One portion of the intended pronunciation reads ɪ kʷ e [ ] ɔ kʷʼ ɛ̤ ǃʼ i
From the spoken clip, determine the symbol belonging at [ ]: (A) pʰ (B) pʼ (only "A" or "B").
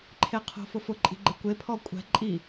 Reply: A